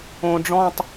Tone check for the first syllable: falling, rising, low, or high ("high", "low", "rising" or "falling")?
low